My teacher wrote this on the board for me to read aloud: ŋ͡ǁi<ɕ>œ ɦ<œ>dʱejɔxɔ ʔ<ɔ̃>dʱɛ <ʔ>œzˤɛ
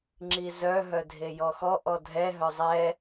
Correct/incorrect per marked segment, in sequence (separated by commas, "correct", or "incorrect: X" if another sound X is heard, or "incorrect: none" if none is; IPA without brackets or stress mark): incorrect: z, correct, incorrect: ɔ, incorrect: ɦ